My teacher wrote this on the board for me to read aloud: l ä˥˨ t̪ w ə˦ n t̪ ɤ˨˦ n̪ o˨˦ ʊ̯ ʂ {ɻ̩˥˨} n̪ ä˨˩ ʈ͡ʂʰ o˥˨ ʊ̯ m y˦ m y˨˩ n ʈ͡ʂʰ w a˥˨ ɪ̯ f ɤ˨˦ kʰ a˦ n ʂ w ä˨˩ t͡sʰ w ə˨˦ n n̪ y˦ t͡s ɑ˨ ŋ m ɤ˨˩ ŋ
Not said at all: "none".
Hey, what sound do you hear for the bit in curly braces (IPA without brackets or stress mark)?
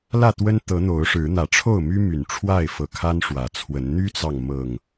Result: ɻ̩˨˦